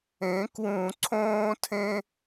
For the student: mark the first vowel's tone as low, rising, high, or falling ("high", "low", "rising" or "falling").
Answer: rising